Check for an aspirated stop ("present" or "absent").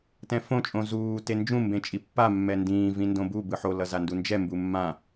absent